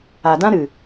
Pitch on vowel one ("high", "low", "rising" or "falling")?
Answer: low